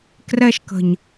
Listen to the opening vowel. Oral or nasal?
oral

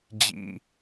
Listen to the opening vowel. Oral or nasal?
oral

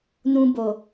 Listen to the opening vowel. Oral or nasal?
nasal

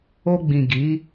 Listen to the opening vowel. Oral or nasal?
oral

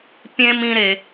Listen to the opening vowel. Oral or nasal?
nasal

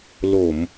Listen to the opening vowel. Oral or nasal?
oral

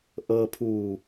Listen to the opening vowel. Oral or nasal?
oral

